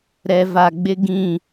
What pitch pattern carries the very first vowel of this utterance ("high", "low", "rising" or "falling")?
low